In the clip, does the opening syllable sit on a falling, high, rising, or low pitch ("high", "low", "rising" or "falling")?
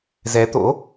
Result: rising